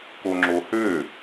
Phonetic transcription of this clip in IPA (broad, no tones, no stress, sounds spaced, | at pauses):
k o ŋ͡ǁ o h ø